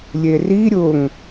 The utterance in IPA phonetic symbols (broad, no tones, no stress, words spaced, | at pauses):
lʲeri ɾʲʊŋ